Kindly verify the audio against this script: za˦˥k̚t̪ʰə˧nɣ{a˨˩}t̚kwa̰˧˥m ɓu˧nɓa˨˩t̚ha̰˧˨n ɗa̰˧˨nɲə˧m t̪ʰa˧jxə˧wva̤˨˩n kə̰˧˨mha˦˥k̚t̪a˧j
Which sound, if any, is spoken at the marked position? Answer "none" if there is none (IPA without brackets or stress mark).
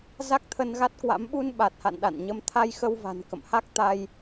a˦˥